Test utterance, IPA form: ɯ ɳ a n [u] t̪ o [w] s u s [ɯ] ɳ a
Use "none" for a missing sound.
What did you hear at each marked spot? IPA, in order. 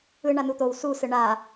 u, w, ɯ

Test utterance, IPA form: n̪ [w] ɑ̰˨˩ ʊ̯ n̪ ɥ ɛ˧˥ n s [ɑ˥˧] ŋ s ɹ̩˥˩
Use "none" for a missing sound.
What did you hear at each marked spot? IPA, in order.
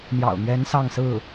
j, ɑ˥˧

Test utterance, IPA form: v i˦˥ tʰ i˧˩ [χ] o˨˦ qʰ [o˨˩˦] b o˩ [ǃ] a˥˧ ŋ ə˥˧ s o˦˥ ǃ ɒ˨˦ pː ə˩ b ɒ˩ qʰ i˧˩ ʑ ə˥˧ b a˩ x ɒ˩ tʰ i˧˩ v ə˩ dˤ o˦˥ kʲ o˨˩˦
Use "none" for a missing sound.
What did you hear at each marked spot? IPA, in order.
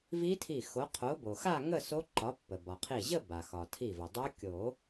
x, o˨˦, x

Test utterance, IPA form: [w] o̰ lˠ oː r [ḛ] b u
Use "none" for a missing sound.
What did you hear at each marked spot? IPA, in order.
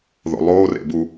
ð, ḛ

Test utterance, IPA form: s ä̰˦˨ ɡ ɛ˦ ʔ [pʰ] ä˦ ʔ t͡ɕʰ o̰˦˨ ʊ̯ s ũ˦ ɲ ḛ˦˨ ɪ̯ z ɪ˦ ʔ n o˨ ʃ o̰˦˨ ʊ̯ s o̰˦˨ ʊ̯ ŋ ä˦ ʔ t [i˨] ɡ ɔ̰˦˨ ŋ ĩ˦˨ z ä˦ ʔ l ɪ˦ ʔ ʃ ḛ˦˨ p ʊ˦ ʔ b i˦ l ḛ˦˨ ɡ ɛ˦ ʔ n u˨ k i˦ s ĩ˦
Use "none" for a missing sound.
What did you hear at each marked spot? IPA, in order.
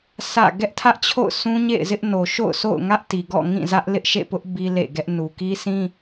tʰ, i˨

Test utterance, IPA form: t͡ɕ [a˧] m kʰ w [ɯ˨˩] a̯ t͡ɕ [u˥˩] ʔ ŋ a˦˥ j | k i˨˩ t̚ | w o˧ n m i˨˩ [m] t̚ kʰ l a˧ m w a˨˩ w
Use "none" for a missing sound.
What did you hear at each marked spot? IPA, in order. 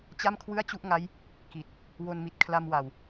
a˥˩, ɯ˥˩, u˥˩, none

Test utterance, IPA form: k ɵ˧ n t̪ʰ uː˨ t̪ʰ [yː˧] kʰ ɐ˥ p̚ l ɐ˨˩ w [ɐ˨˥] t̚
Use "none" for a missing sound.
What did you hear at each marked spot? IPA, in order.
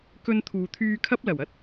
yː˧, ɐ˥

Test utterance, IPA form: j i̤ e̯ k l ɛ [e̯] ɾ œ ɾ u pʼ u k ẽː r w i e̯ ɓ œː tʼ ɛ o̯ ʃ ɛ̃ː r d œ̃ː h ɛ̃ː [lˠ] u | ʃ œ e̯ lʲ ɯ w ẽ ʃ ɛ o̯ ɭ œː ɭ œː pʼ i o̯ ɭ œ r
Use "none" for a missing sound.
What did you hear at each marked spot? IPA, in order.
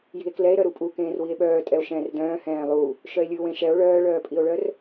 e̯, lˠ

